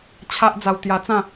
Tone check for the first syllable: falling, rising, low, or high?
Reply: high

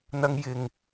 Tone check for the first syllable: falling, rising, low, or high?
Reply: high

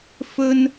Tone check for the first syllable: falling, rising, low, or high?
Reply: high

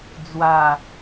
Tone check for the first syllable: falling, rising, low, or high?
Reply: falling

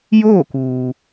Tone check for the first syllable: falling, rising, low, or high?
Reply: falling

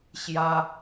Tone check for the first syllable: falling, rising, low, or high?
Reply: high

